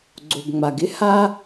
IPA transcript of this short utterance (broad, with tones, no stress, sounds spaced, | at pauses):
ɡ͡ǀ o˩ ɡ ŋ͡m a˩ ɡ ɪ˥ h a˥